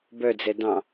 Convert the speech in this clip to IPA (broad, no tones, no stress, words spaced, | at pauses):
bœd͡zɛ dɑ̃